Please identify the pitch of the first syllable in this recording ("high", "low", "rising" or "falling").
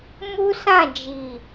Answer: high